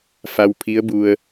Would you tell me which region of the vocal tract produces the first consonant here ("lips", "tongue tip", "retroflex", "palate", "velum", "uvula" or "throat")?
lips